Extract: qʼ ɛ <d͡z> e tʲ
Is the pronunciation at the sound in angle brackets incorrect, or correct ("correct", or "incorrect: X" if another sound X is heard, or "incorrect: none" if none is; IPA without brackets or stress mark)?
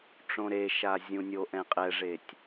incorrect: ʐ